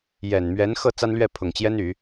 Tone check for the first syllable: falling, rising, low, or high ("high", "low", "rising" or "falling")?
low